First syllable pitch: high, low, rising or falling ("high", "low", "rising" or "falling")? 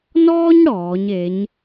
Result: high